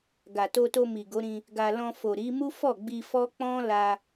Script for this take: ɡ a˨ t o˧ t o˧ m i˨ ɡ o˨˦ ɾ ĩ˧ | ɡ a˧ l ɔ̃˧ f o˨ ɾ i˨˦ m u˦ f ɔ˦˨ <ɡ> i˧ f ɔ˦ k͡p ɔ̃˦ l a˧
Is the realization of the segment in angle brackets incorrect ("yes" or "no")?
yes